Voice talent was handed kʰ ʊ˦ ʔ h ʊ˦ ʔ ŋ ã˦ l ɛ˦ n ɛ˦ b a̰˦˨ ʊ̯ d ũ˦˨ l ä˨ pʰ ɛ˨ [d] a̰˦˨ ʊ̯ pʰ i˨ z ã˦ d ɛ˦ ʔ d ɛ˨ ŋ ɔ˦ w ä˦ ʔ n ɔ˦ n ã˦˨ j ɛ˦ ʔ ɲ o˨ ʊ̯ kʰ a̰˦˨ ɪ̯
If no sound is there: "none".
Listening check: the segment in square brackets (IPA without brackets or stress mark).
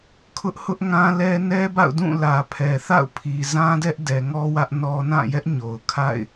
θ